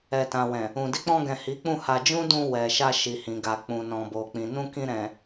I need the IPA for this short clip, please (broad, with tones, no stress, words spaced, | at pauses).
ɛ˨tã˨wɛ̃˨ | ũ˨ di˧k͡pɔ̃˧ɡɛ̃˨ hi˨˦k͡pũ˦˨ ha˧ d͡ʒũ˦dũ˧ wɛ˨ʃa˧ ʃi˨hĩ˨ɡa˨k͡pũ˨ nɔ̃˨bo˨k͡pĩ˨ nũ˧kĩ˧ ɾɛ̃˨